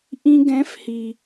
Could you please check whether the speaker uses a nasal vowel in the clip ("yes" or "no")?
yes